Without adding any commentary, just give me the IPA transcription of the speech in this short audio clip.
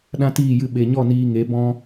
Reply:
ɗ ã˦ t iː˦˨ j ɨ˧ ɓ e˨ ɲ ɔ˦˨ n iː˧ ŋ e˨˦ b ɔ̃˧

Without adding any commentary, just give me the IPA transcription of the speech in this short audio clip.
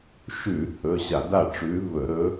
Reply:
ʃ ʉ˧˩˧ h ɵ˩˧˩ ɕ a˧˩˧ d a˥˩ ʈ͡ʂ ʉ˧˥ v ɵ˧˩˧ ɾ ɵ˧˥

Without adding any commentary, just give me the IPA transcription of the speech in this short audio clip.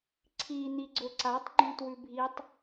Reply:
ǀʰ i n̪ i ɡ͡ǀ ɵ ǀ a tˤ ɡ͡ǃ ũ t w ʉ bʱ i tˤ

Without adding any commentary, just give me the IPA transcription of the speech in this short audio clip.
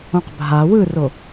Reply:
õ q bʱ a w ɯ r o

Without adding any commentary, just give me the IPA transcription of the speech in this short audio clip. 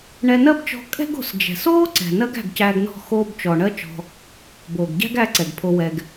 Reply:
ɳ ɛ˧ n ɜ˦ b t͡ʃ ɔ̤˦ kʼ ɛ̤˦ ɡ o̤˧ s d͡ʒ ɛ̤˨ s oː˦ ǀ ɛ̤˨ n ɜ˦ ɡ æ̤˦˨ ɡ c æː˧ ɡ n ɔ̤˦˨ x oː˧ b t͡ʃ ɔ˨ ɳ ɜ˦ t͡ʃ ɔ̤˧ | b oː˨ ɡ ɟ æ̤˦ ɡ æ˧ ǀ ɛ˨ ɡ pʰ o˧ w ɛ˧ ɡ

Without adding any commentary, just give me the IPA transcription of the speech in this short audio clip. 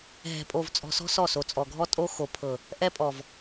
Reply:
ɦ ɛ̤˨ pʼ o˨ v t͡sʼ ɔ̤˨ s ɔ̤˦ s ɔ˦˨ s o˨ t͡sʼ ɔ˨ ɡʱ ɔ˦ tʼ o˦ x o˨ pʰ ɤ˨ | ʔ ɛ˦ pʼ ɔ˨ v

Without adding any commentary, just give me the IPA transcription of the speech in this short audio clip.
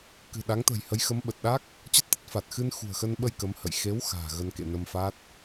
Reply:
k ɨ̤˨˩ ɗ a˨˦ ŋ t̪ ə̤˨˩ j h ə˨˦ j x ə˨˦ m ɓ ə˨˩ t̚ ɗ a˦˥ k̚ | t͡ɕ ə˦˥ t̚ t̪ ə˦˥ t̚ f aː˨˩ t̚ x ɨ˧ n x ṳ˨˩ ə̯ x ə˧ n ɓ ə˧ j k ə˨˦ m h ə̰˧˨ j x e˨˦ w x a̤ː˨˩ ɣ ə˧ n k ḛ˧˨ n ə˧ m f a˦˥ t̚

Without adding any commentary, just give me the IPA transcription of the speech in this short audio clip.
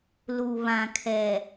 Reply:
l u˨ β ã˨ kʰ ɛ˨

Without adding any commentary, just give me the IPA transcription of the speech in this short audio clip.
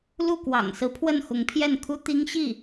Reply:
l u˥˩ k w ɑ̰˨˩ ŋ s ɹ̩˧˥ pʰ w ə˥˩ n x ʊ˧˥ ŋ pʰ j ɛ˥˩ n kʰ u˥ t̪ i˥ ŋ ɕ i˥˩

